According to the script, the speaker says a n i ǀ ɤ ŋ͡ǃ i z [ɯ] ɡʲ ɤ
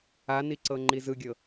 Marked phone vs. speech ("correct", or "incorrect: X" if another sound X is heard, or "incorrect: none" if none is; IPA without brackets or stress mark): correct